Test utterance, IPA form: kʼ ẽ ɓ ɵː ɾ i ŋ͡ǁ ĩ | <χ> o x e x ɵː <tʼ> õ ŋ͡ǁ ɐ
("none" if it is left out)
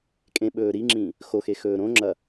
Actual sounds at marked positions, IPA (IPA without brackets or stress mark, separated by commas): x, ɾ